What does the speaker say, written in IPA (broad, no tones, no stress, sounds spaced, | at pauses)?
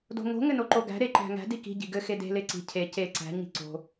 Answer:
d o̤ ŋ o̤ ŋ ɘ n o ǃ o ɡ æ̤ ɾ e ǃ æ̤ ŋ æ̤ d i k i̤ ɟ i̤ ɡ ɘ x e d e̤ l e ǀ i̤ cʰ e c e ǀ æ̤ ɲ i̤ ǀ o̤